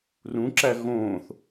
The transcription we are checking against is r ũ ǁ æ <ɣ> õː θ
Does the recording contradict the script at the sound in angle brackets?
no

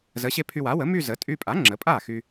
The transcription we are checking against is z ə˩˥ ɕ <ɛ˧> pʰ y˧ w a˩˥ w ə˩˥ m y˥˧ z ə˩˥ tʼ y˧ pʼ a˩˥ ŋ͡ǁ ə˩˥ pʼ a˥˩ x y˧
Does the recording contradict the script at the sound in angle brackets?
yes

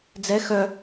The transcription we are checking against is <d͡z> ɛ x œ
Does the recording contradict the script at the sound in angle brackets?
no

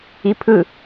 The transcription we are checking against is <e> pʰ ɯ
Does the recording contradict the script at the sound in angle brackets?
yes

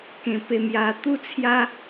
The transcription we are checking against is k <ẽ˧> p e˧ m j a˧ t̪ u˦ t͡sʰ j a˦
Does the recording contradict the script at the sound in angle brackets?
no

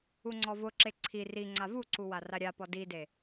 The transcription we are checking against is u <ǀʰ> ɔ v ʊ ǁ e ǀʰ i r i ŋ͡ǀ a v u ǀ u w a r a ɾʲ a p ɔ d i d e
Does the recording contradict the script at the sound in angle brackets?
yes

